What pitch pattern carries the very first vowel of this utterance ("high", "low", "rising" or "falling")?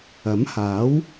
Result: rising